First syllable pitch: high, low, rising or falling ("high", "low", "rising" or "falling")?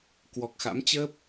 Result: low